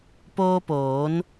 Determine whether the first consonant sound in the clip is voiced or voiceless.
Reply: voiceless